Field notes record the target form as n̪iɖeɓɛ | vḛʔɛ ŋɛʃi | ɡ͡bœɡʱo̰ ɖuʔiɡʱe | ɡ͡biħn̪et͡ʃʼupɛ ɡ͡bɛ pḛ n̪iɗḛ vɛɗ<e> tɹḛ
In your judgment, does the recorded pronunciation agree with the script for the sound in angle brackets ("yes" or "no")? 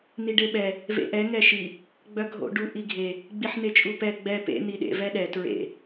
no